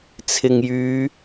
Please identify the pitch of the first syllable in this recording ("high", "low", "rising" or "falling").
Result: low